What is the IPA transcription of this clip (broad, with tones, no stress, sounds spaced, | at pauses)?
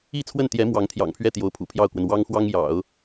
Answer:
i˥˧ t͡sʰ w ə˥˩ n t̪ j ɛ˧˥ m w ɑ˧˥ ŋ t̪ʰ j ɑ̰˨˩ ŋ pʰ ɥ ɛ˥˩ t̪ j o˧˥ ʊ̯ pʰ ṵ˨˩ pʰ j ɑ˥˩ ʊ̯ k w ə˩ n w ɑ˥ ŋ x w ɑ˥ ŋ j ɑ̰˨˩˦ ʊ̯